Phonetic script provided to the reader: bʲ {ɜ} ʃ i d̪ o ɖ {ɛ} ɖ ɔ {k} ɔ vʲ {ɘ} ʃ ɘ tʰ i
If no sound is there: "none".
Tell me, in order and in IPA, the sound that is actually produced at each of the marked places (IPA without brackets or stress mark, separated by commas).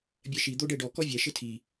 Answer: ɜ, ɛ, k, ɛ